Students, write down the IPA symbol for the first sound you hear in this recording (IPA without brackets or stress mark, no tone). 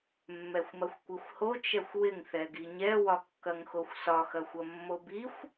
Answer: mː